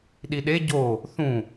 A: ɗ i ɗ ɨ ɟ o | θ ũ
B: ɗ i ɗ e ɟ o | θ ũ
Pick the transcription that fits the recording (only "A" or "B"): B